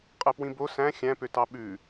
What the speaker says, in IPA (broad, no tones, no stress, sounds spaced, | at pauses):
qʼ ɛ p w ĩ b o s æ̃ xʲ æ̃ p ø t ɑ ɓ ʉ